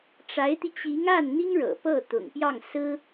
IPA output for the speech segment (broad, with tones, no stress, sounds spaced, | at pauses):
ʈ͡ʂ a˧˥ ɪ̯ t̪ i˧ t͡ɕ i˧˥ ŋ a˥˩ n n̪ i˥ ŋ ɻ ɤ̰˨˩ p ɤ˥˩ t̪ ʊ̰˨˩ ŋ p j ɑ˥˩ ŋ s ɹ̩˥